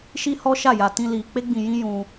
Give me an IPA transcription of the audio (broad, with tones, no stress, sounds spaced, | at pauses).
ʃ i˦ h ɔ˦ ʃ a˦˨ j a˧ t ĩ˧ l i˧ k͡p e˦ ɡ͡b ĩ˧ j ĩ˦ j ũ˦